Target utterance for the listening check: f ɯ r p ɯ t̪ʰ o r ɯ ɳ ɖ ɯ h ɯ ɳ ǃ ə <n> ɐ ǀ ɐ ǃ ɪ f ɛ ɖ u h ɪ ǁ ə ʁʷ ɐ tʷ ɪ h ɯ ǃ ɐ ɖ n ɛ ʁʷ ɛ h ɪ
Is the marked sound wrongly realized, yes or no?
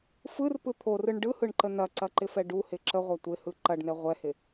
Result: no